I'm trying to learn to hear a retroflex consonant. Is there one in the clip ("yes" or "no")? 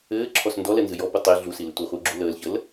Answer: no